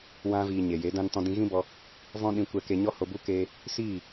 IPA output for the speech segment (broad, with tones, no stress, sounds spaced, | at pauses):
w ã˧ v iː˨ ɲ e˨ j e˨˦ d ã˦ n t ɔ̃˧ d ĩ˧ ɣ ĩ˦ b ɔ˧ | v ɔ̃˦ ɗ ĩ˧ kʷ ɛ˧ k e˧ ɲ ɔ˦ h o˧ b u˦ k eː˧ | s iː˦˨